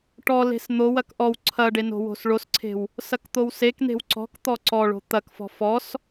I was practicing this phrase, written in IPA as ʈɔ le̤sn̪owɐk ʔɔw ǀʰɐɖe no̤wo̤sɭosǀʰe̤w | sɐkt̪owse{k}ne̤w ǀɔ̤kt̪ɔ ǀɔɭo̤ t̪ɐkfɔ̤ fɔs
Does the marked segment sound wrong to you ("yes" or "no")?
no